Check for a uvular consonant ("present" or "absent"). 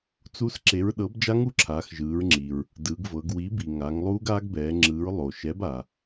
absent